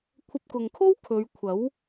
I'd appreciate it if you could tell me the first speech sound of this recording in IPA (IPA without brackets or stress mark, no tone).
kʷʰ